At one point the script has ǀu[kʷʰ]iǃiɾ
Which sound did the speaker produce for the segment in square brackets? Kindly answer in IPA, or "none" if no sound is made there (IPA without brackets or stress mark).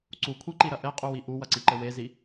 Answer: kʷʰ